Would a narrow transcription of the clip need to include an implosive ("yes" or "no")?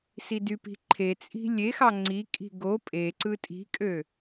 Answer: no